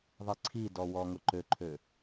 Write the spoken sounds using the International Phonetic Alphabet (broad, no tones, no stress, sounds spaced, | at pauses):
ðˤ i ǀʰ i d ɔ w ɔ ŋ ʊ ǃ ø ǃʰ ø